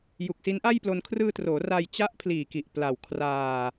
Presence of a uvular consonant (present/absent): absent